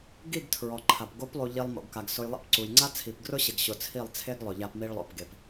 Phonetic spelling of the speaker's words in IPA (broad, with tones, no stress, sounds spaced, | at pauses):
ɡ i˦˨ ɡ tʰ ɹ ɔ˨ ǃʰ a˨ p ɡ o˨˦ p lˠ u˨ ʎ i˧ lˠ m o̰˨ ɡ k a˨ ɡ s ʊ˧ j lˠ ɛ̰˦ p ǀ u˨ j ŋ͡ǀ a˦ t͡sʰ i˨ p ɡ r ʊ˦ ɕ ɪ˨ ɡ ɕ ʊ˨ t͡sʰ i˦˨ lˠ t͡sʰ e˦ ɡ lˠ ʊ˨ ʎ a˧ p m i˧ ɭ lˠ o̰˨ p ɡ e˨ p